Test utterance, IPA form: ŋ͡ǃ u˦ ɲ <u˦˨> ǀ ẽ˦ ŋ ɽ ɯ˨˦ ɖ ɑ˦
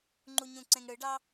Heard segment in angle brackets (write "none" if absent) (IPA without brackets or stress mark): ũ˦˨